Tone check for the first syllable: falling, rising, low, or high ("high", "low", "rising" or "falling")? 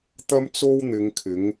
high